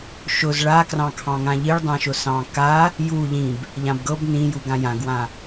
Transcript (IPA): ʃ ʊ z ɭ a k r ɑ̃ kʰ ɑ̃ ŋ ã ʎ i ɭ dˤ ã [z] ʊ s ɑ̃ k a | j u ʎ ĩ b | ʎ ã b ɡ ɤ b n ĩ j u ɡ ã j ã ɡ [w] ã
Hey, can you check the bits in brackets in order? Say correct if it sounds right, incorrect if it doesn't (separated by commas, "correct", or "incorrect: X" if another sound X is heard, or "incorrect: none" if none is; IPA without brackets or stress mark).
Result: incorrect: ʃ, correct